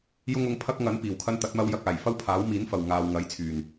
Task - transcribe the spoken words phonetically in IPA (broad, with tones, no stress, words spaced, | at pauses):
jʊ˥ŋʊ˧ŋpʰɐ˥k̚ ŋɐ˨˥n piː˨˩wkʰɐ˧n t̪ɐ˨˥t̚mɐ˧w jɐ˧k̚aː˨˩j fɐ˥wpʰaː˨˥wmiː˨˥nfɐ˨w ŋaː˨w ŋɐ˨˥jt͡sʰyː˨˩n